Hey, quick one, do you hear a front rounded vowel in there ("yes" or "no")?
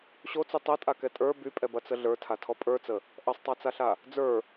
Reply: yes